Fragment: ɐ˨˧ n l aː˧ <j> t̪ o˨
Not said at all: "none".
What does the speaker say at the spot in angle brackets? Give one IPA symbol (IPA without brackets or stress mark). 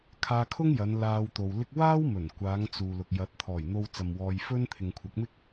w